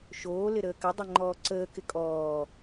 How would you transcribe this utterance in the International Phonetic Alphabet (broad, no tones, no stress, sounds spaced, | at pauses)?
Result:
ʃ oː l ɪ ɾ əː k ə dˤ ɛ ŋ͡ǃ ɔː ǀ əː k ɪ kʼ ɔː